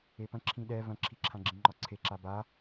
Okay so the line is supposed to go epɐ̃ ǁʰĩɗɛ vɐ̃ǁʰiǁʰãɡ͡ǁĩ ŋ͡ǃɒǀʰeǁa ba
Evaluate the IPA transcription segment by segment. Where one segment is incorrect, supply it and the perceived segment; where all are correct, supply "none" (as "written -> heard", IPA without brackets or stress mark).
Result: none